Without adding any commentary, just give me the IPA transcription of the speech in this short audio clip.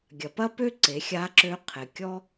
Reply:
ɡʲ ɐ˩ p ɐ˥ p ø˥ ǀ e˩˧ xʲ a˧˥ ǁ ø˧˥ qʰ e˩ kʲ ɔ˥

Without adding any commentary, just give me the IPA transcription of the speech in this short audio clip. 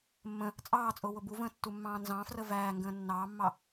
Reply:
mː ə̃ | t͡sʼ ɑː t͡sʼ ʊː w ʊ b u v ə̃ː tː u mː ɑ̃ː n z ɑ̃ f r ə v æː ŋ ɡ ə̃ː nː ɑː mː ɑ

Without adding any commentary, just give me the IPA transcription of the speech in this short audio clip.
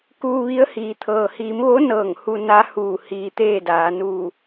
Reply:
k uː˧ ʋ i˧˥ ə̯ h iː˩˧ t̪ʰ ɤː˩ h iː˩˧ m ʋ o˧˥ n ɤː˧˩ ŋ h u˧ n a˧˥ h uː˧˩ h iː˧ t̪ eː˥˨ d aː˩˧ n uː˧˩

